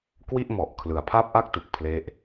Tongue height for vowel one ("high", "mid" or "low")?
high